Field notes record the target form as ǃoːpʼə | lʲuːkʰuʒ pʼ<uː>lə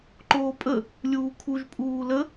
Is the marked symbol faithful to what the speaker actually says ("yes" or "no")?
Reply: yes